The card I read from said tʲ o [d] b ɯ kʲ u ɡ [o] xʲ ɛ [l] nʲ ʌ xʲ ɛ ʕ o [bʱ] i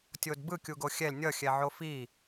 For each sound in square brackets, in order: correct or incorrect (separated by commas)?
correct, correct, correct, incorrect